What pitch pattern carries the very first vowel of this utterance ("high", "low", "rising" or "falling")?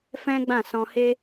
high